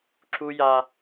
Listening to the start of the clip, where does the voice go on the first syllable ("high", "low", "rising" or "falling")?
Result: high